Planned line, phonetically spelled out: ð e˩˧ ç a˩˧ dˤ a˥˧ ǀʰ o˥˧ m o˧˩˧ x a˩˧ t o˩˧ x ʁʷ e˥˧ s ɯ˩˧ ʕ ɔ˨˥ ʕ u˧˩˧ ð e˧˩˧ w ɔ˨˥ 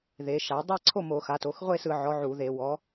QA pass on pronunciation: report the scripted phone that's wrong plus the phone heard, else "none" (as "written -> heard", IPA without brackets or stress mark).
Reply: ç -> ʃ